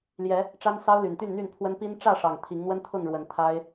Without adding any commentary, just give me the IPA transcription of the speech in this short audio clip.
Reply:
l j ɛ˨˦ | ʈ͡ʂ a˦ n s ɑ˦ ʊ̯ l y˨˩ n t̪ y˥˨ n n̪ y˥˨ n pʰ w ə˦ n p i˦ n ʈ͡ʂ ä˥˨ ʂ ɑ˨˩ ŋ t̪ʰ i˨˦ ŋ n̪ w ə˦ n t̪ʰ ʊ˥˨ ŋ ɻ w ə˨˦ n t̪ʰ a˦ ɪ̯

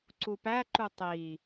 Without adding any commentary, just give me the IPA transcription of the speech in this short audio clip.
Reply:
ǀ u p æ ǃ u tˤ i

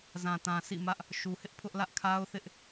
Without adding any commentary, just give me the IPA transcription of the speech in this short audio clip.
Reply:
z ã˨ t ã˨ sʰ ḭ˦˨ m ä˦ ʔ | ʃ u˨ h ɪ˦ ʔ pʰ ʊ˦ ʔ l ä˦ ʔ kʰ a˦ ʊ̯ θ ɪ˦ ʔ

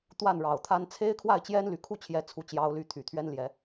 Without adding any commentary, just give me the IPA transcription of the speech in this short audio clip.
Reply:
t̪ w a˥˨ n ɻ ɑ˨˩ ʊ̯ t̪ʰ a˦ n t͡sʰ e˦ ɪ̯ kʰ w a˥˨ ɪ̯ t͡ɕ j ɛ˦ n l y˨˩ kʰ u˥˨ t͡ɕʰ j ɛ˨˦ t͡sʰ u˥˨ t͡ɕ j ɑ˦ ʊ̯ l y˥˨ t̪ʰ y˨˩ t̪ʰ ɥ ɛ˦ n l j ɛ˨˦

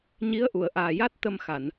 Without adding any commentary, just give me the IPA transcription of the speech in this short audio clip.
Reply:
ɲ i˧˥ ə̯ ʔ u˨˩˨ ə̯ ʔ aː˨˩ j a˦˥ t̚ t̪ ə˧ m x a˨˩˨ n

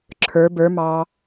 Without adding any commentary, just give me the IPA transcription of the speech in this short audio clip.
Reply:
ǁʰ ə˞ b ə˞ m ɑ

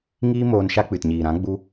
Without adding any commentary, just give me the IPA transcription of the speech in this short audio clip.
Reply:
ŋ iː˦ m oː˧ n ʃ a˦ k͡p ɨ˨ t ɲ iː˨ ɾ ã˨˦ ɡ͡b u˧

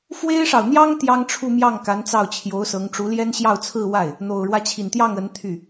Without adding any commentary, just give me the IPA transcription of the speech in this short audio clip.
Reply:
f w e˥ ɪ̯ ʂ ɑ˨ ʊ̯ n̪ j ɑ˥ ŋ t̪ j ɑ˥ ŋ ʈ͡ʂʰ u˥˧ m j ɑ˥˩ ŋ k a˧˥ n t͡s ɑ˥˩ ʊ̯ t͡ɕʰ j o˧˥ ʊ̯ s ɤ˧˥ ŋ ʈ͡ʂ u˧˥ l j ɛ˥ n ɕ j ɑ˥˧ ʊ̯ t͡sʰ ɹ̩˥˧ w a˥˩ ɪ̯ | n̪ o˨˩ ʊ̯ ɻ w ä˦ t͡ɕʰ i˨˩ n t̪ j ɑ˥˩ ŋ ə˧˥ n t̪ʰ y˥˩

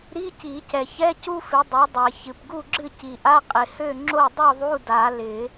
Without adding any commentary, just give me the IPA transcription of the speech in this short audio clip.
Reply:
ɾ i˧˥˧ c i˨˩˦ c ɛ˨˩ ç ɛ˧˥˧ c u˥ f ɪ˨˥ dˤ ø˨˥ dˤ ɛ˨˩ ç ɨ˨˩ p ɡ u˥˨ ɡ͡ǁ ɨ˥˨ c i˨˩ ʔ a˧˥˧ qʼ ɪ˨˩ h ø˥˨ ŋ͡ǁ o˥˨ dˤ u˥˨ ðˤ u˧˥˧ d a˨˩˦ l ɪ˨˩˦

